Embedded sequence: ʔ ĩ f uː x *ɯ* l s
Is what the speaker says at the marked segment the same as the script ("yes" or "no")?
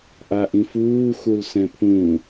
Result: no